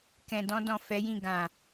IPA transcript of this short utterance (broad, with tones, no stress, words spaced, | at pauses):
kɛ̃˨dɔ̃˧dɔ̃˨ fɛ˨˦jĩ˦˨ ɡã˨